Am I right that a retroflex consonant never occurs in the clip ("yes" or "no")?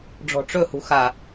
no